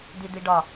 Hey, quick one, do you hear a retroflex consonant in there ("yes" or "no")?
yes